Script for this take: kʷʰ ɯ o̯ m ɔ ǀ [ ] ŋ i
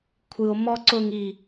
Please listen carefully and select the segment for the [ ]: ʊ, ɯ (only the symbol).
ʊ